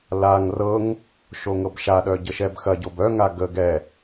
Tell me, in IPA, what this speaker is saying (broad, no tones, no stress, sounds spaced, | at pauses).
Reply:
l a ŋ r ɤ ŋ | ʃ o ŋ ɤ b ʃ a ɗ œ ɟ ə ʃ ɛ b x ɐ ɟ o b œ ŋ a ɡ ə ɡ ɛ